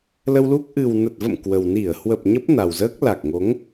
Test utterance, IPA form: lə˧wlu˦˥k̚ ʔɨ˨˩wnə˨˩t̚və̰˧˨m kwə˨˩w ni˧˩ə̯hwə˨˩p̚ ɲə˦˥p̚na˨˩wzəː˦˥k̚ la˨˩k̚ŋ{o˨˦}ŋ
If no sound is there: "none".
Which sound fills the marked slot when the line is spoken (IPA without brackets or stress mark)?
o˨˦